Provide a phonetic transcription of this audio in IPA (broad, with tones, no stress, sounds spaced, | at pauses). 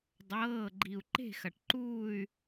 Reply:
dˤ ɤː˩˧˩ ɡ͡ǃ i˩ u̯ ǃ e̤˥˨ x ɐ˩ ʈ ǃ uː˥˨ y̯